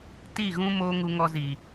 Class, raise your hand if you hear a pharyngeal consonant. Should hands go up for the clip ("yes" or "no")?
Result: no